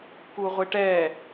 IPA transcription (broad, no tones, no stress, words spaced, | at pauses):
kuʁʷɪʈɛ